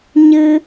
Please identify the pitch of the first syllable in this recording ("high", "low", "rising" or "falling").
high